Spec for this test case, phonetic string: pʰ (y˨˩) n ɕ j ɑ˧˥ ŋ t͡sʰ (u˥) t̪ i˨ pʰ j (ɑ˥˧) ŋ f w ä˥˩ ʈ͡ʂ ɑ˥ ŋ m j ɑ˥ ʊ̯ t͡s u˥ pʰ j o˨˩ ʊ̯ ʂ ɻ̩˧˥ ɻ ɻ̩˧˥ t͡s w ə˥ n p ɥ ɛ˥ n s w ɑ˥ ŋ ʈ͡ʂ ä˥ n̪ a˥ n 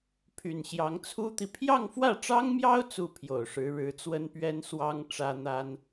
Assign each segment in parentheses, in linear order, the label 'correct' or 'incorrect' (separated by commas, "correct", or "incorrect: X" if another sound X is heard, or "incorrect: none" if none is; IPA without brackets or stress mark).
correct, correct, correct